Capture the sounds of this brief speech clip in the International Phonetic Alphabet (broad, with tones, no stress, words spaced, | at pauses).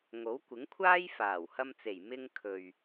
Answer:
ŋo˨˥wkʷɪ˨˥ŋkʷʰaː˥j faː˨˩w hɐ˧mt͡se˨˩j mɪ˧ŋ kʰɵ˨ɥ